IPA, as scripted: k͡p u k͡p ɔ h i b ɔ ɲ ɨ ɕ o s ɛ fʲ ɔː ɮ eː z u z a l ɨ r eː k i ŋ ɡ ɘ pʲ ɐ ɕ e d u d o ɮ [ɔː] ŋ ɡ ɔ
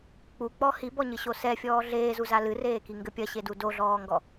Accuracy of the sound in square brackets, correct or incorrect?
correct